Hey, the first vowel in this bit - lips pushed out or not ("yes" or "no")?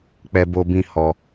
no